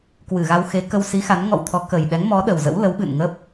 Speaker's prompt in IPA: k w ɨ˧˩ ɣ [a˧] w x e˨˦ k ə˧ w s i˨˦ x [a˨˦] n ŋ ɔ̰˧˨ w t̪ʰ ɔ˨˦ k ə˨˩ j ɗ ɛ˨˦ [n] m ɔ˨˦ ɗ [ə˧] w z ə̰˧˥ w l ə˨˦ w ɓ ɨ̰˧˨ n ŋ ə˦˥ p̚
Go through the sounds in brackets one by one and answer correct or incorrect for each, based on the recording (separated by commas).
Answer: correct, correct, incorrect, incorrect